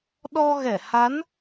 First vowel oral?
yes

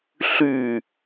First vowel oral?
yes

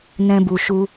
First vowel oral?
no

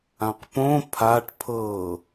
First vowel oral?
no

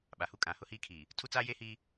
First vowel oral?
yes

